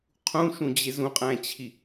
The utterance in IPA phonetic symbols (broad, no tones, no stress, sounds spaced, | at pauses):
qʰ ũ ʃ ũ d͡ʑ e z ũ qʼ æ̃ t͡ɕʰ i